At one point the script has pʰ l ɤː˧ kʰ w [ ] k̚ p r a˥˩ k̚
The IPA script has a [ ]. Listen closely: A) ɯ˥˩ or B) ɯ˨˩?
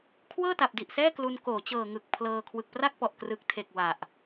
B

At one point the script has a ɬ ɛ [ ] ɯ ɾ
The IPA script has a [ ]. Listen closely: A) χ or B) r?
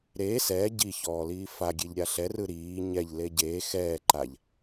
B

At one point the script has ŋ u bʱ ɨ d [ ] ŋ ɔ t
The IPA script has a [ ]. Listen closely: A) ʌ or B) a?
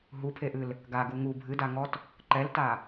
B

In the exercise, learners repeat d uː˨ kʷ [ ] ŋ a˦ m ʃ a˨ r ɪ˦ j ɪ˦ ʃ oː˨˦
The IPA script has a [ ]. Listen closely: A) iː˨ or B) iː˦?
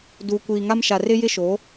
A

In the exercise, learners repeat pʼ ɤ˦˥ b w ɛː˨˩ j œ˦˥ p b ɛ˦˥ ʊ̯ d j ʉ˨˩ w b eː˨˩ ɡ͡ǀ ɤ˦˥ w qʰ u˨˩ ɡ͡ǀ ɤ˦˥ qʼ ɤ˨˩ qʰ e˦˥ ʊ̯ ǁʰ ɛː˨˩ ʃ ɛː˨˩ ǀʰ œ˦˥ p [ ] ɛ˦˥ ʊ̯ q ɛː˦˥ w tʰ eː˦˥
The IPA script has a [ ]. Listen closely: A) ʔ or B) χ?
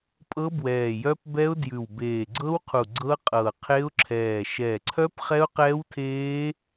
B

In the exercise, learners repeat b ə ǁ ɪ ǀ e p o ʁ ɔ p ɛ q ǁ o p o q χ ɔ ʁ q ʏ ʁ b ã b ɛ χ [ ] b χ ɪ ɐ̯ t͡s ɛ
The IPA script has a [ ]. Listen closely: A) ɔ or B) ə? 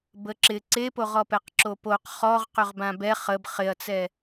B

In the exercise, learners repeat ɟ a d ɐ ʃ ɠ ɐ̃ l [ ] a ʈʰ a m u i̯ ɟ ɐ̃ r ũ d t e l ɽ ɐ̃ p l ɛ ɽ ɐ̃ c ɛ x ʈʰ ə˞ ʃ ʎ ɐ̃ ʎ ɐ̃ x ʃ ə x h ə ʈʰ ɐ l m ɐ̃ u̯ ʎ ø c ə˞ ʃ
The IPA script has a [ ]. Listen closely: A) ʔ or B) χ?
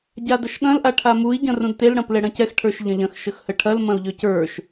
A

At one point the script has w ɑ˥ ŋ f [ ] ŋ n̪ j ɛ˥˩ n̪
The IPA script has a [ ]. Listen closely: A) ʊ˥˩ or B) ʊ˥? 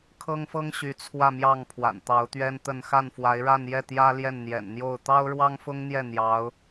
B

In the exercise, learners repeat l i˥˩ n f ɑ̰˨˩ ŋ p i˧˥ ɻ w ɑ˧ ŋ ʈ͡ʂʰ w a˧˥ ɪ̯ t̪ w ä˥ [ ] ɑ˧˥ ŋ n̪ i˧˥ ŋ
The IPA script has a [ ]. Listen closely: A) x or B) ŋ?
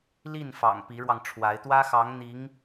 A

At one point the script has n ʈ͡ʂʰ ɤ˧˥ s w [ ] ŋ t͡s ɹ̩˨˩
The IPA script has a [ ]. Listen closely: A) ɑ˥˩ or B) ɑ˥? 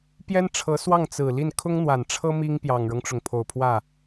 A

